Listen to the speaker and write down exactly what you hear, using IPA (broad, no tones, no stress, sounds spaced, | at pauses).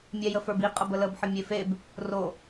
mʲ ɛ j ə f ə˞ b i qʼ ə b ə l ə b ħ ə mʲ e f e b | r o